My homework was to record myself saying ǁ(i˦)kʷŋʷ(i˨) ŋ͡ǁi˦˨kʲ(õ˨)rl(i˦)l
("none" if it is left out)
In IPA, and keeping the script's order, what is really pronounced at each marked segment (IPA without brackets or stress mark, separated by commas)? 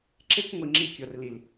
e˦, i˨, o˨, i˨